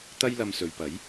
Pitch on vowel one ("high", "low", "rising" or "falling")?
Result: high